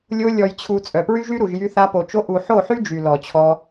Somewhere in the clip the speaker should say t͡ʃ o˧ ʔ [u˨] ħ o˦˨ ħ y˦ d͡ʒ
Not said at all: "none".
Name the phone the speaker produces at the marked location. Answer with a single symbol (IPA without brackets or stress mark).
u˨